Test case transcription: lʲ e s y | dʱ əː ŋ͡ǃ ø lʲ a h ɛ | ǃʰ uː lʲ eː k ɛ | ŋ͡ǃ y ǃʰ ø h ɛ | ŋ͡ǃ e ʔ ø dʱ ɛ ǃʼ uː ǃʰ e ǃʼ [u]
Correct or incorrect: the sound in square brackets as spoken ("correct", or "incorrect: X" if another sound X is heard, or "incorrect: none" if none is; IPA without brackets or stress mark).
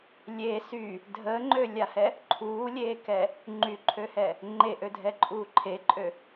incorrect: ø